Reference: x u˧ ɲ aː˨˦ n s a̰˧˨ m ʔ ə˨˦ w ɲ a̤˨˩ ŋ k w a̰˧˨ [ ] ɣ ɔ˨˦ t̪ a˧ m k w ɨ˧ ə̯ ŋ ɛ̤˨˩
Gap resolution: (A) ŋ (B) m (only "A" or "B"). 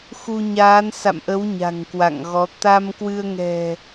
A